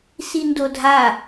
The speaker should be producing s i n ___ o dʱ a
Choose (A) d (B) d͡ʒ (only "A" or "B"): A